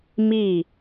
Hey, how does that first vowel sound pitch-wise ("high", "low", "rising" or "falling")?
falling